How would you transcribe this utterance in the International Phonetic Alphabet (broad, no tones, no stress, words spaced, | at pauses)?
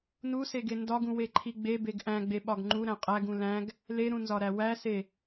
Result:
nuseɡe ndɒɡũweǃʰi ɡ͡bebeɡ ʔæ̃ɡ͡beɓɒɡ ŋ͡ǃuɾæ̃ qʼæɡũ læ̃ɡ | leɾũnzɒɾæ wæse